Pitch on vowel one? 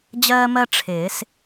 high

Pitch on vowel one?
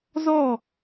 falling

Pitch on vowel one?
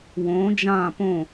rising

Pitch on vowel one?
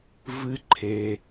high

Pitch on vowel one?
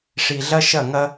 low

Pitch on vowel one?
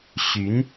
rising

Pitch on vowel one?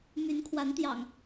rising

